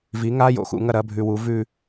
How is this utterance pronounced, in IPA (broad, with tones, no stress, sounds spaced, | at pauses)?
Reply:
v i˩˥ ŋ a˧˥˧ j o̰˩ x ṵ˩˥ ŋ ɐ˥˨ ɾ ɐ˧˥˧ bʱ ʉ˧˩ w u˩˥ v ʉ˥˨